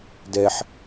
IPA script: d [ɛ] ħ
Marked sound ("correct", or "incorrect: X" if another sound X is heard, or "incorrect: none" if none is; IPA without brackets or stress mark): correct